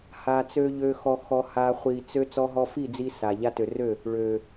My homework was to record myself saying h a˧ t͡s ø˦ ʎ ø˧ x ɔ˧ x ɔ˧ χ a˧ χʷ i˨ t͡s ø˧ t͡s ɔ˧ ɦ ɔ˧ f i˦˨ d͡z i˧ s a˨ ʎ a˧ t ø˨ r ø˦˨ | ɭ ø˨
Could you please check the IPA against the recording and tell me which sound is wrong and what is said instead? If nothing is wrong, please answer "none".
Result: χ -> h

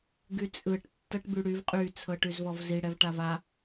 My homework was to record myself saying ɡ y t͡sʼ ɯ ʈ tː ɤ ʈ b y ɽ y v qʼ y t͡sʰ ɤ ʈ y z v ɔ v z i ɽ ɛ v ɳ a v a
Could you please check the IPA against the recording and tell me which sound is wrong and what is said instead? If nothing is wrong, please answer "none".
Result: ɳ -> ʈ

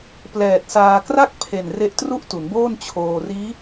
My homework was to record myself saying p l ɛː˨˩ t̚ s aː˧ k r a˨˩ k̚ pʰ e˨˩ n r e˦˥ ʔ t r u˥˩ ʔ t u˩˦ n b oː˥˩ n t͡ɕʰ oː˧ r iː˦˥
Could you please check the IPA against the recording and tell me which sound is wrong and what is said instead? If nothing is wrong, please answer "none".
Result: a˨˩ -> a˥˩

